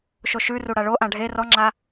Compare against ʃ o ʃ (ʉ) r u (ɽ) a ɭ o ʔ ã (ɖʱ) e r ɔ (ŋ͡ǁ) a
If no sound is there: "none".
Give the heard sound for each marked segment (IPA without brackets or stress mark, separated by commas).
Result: ʉ, ɽ, ɖʱ, ŋ͡ǁ